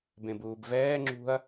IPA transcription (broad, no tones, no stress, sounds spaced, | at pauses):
b ẽ b uː b v ɛː ŋ͡ǁ ṳ ɐ̯